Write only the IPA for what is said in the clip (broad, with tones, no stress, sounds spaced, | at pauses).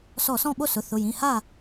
s ɔ˧˩˧ s ɔ̃˥˩ ɓ o˥˩ s ʊ˩˧˩ θ ʊ˩˧˩ j ĩ˩˧˩ h a˥˩